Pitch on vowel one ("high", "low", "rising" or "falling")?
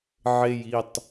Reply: low